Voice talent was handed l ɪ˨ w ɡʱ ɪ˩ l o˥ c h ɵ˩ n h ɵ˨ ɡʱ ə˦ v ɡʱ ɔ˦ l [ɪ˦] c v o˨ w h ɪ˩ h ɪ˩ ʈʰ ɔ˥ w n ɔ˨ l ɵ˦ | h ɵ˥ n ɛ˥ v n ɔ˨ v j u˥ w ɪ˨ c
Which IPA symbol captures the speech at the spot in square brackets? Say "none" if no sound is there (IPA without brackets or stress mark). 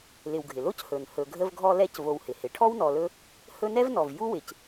ɛ˦